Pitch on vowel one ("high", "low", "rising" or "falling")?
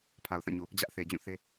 low